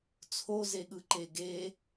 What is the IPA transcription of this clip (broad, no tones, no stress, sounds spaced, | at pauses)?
t͡sʰ o z e ɠ ɯ ǃ e ɡ e